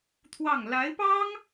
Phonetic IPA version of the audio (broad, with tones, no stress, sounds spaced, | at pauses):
t̪ʰ w ɑ˥˩ ŋ l a˧˥ ɪ̯ p ɑ˥ ŋ